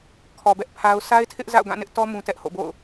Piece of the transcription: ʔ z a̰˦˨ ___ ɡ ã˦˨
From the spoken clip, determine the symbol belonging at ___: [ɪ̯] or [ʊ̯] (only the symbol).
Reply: ʊ̯